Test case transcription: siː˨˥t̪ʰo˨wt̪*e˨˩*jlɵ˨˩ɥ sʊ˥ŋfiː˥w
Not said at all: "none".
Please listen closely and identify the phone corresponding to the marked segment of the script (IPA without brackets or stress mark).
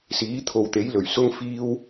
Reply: e˨˥